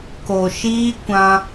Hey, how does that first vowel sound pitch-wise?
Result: low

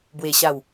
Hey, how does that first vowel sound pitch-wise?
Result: low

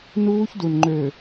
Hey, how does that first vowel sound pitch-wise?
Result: high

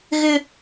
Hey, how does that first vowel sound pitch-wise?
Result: high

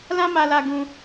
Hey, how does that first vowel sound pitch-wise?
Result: high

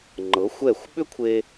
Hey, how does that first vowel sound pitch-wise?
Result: rising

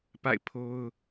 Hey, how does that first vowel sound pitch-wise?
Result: falling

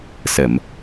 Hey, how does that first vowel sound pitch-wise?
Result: low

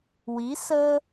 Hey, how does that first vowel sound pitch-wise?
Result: rising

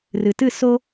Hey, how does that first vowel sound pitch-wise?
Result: low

